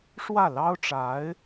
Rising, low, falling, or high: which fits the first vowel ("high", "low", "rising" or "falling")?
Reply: falling